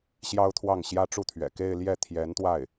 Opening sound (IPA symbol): ɕ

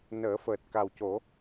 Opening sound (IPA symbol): n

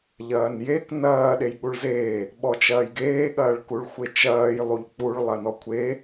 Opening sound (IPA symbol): ʎ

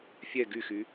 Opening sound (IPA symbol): fʲ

